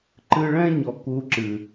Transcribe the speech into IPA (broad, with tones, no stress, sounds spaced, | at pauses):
ǃ ɨ˧ ɭ ɛ̃˦ ɲ ɔ˨ k u˧ ǁ ɨ˨